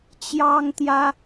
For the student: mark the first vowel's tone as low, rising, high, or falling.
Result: high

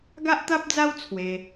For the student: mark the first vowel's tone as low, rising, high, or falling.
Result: high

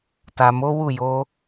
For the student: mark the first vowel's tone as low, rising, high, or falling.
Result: low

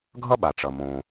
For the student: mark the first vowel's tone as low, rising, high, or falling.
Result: high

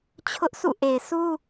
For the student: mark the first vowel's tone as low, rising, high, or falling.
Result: high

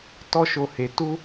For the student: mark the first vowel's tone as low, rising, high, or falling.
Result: high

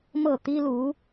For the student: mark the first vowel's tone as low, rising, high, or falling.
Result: falling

